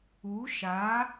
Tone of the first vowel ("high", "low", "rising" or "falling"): rising